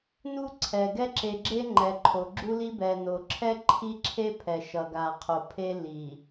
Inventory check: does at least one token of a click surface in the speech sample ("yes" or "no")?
yes